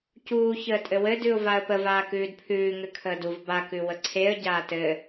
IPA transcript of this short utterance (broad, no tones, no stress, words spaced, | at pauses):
cuː çəːtʼɘwɘ dʉʊ̯vaə̯pəv aːkʉːdpʰʉː ŋɘkʰəːduv ba kʉwəǀʰeə̯ ɟaːtɘ